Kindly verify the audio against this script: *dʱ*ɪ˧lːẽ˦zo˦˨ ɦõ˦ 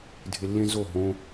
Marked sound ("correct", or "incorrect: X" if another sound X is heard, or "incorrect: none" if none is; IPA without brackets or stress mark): correct